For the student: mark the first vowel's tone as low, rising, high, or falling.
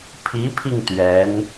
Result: rising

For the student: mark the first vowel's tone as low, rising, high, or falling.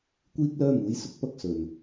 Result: high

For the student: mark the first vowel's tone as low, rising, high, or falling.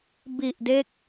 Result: low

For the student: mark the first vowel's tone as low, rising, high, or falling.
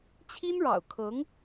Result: high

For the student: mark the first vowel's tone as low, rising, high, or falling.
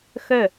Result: falling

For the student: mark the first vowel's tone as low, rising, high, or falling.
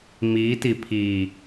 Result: rising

